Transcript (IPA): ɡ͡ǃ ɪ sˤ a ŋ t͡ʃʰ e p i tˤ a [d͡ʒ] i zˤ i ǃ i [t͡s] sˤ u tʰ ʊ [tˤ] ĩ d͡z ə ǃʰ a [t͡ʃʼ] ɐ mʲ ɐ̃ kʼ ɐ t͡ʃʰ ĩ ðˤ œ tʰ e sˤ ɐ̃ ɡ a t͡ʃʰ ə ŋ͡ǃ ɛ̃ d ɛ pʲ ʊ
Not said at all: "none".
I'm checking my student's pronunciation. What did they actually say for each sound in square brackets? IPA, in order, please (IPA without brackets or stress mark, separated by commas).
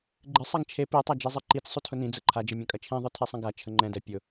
d͡ʒ, t͡s, n, d͡ʒ